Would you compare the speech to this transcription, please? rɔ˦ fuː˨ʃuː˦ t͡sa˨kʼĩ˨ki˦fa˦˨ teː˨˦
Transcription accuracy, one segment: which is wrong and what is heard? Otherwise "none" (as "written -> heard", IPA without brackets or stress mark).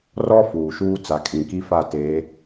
none